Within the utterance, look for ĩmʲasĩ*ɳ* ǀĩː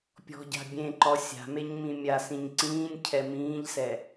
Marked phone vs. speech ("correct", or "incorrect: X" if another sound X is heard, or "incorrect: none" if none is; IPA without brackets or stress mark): incorrect: ɲ